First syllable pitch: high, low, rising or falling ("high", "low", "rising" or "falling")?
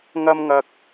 high